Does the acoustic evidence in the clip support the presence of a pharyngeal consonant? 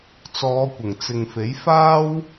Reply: no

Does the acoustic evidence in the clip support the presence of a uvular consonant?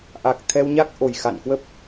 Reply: no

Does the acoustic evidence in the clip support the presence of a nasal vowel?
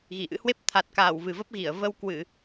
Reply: no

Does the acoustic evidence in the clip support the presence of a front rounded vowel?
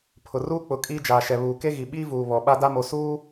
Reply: no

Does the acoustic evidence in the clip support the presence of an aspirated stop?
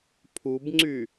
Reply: yes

